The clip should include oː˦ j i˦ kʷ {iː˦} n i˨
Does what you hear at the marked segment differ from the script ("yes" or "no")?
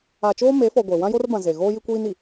no